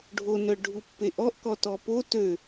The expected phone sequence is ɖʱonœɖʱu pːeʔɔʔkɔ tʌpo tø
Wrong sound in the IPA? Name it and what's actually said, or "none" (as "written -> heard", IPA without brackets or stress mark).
ʌ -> ɔ